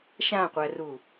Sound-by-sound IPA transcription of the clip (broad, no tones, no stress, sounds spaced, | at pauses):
ʃ ã qʷ æ r u